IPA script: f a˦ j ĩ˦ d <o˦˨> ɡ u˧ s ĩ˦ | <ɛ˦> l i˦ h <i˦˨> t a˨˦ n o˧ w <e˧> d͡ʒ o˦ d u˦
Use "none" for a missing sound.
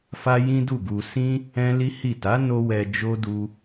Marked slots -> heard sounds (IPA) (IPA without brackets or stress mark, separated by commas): u˦˨, ɛ̃˦, i˦˨, ɛ˧